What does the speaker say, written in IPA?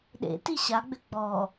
ɗ ḛ t i ɕ a ɡ͡b ʏ ɡ͡b ɔ

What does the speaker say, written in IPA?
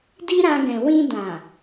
d i˦ ɾ ã˧ ɡ ɛ̃˨ w ĩ˧ d ã˨

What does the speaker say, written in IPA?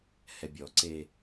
h ɛ bʲ ɔ ǀ e

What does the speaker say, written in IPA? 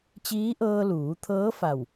t͡ɕ iː˧˥ ʔ ɤː˧ l uː˩˧ t̪ʰ ɤː˧˥ f a˧˩ w

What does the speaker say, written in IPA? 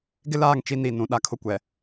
ɡ ɪ˦ l aː˦˨ ŋ t͡ʃ i˦ n i˦˨ n ũ˨˦ ɗ a˦ kʰ ʊ˦ kʷ ɛ˨

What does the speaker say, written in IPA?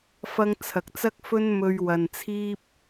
f ɐ˧ ŋ t͡sʰ ɐ˨ k̚ t͡s ɐ˥ k̚ f ɵ˥ n m ɵ˧ ɥ w ɐ˨ n t͡sʰ iː˥ p̚

